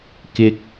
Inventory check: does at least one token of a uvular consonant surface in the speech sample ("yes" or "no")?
no